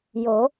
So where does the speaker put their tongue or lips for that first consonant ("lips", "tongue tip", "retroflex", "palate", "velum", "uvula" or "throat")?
palate